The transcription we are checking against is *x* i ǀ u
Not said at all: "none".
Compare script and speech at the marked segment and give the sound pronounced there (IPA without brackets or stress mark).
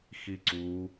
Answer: x